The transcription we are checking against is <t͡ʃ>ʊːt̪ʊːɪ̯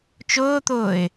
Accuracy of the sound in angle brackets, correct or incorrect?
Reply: correct